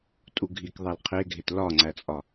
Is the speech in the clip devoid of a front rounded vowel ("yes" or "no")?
yes